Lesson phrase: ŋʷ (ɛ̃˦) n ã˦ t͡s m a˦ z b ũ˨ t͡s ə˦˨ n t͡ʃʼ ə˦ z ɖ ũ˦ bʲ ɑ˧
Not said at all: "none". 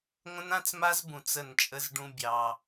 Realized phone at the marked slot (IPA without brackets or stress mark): ə̃˦